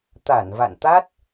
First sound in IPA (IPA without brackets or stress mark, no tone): t̪